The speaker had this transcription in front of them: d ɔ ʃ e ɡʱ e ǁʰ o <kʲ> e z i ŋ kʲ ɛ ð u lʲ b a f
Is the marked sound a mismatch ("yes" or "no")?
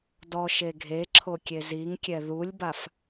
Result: no